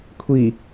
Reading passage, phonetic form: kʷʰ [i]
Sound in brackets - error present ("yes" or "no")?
no